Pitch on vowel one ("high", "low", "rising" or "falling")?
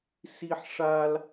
high